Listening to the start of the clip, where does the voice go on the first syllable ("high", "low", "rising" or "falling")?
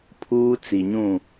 high